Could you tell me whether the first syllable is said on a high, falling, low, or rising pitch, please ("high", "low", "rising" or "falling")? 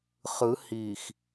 rising